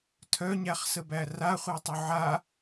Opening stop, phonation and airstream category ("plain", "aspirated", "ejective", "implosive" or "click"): aspirated